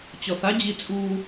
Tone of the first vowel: low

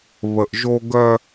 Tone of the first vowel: low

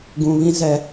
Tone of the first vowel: low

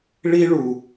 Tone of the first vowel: high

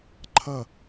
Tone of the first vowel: falling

